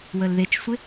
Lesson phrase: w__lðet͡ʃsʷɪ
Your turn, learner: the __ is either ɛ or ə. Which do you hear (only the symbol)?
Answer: ə